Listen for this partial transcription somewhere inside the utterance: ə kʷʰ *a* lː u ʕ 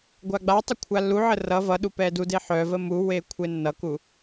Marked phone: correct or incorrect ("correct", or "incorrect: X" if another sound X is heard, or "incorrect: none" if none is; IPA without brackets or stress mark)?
correct